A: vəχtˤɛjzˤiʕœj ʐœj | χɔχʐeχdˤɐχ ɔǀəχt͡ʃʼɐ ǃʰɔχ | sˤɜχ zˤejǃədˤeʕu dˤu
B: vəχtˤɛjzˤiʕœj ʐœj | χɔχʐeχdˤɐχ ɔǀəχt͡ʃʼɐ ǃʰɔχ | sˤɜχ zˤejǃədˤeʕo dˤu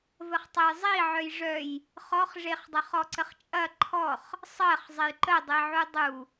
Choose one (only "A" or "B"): A